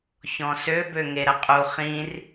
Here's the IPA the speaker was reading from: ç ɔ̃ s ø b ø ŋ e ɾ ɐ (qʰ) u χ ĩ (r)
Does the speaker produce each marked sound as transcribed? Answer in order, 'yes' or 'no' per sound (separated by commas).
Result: no, yes